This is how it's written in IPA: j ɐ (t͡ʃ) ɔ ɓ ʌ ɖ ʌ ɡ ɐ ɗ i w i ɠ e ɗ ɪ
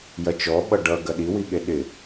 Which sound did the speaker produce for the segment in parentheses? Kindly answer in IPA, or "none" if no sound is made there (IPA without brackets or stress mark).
t͡ʃ